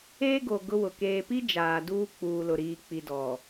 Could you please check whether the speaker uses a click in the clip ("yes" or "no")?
no